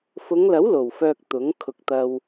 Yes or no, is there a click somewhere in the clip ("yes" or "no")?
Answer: no